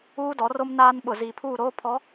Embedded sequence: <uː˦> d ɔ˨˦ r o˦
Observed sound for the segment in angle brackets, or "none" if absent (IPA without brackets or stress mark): uː˦